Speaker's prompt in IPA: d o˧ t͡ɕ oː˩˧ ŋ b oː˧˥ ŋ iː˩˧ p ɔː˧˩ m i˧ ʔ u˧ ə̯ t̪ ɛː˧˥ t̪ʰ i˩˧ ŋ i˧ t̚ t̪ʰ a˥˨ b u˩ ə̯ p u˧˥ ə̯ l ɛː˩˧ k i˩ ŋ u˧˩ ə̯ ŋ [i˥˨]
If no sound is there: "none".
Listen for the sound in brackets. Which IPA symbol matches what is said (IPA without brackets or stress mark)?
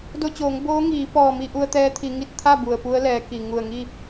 i˥˨